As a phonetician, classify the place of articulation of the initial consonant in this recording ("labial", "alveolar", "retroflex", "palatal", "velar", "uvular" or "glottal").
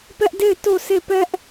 labial